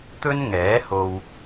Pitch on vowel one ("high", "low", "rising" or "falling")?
high